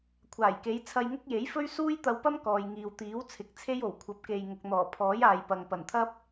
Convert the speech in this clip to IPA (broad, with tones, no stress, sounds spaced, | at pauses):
kʷʰ aː˨˩ j k e˨˧ j t͡sʰ ɐ˧ j ŋ ʊ˥ k̚ j e˨˥ j f ɵ˥ ɥ s uː˥ j t̪ ɐ˧ w p ɐ˥ m k ɔː˨ j ŋ iː˨ w t̪ iː˨˥ w t͡sʰ ɪ˨˥ k̚ t͡sʰ e˥ j o˨˩ w kʷʰ ɐ˨˥ p̚ k e˨ j ŋ ʊ˨ k̚ n̪ ɔː˨˩ pʰ ɔː˨˥ j aː˨ j p ɐ˨ ŋ p ɐ˨˩ n t̪ʰ ɐ˥ p̚